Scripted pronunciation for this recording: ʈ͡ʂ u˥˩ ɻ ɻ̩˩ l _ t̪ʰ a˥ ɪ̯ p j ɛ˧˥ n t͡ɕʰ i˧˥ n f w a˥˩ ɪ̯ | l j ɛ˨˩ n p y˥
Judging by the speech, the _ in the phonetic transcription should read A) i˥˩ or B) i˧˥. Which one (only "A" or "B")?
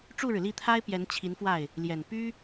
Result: A